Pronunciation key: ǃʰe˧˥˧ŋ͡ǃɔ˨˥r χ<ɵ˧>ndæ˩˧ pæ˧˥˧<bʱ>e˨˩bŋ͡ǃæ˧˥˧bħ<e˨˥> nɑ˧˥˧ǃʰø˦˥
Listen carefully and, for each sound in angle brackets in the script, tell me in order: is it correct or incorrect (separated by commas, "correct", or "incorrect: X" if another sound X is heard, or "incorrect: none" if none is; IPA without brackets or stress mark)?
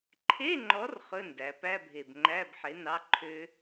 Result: incorrect: ɵ˧˥˧, correct, correct